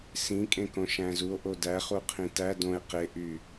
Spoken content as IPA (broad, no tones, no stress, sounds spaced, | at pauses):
s ĩ kʼ ẽ k õ ʃ æ̃ z u o̯ ʔ o d æ χ u qʰ ĩ t æ d õ e̯ q e ʔ y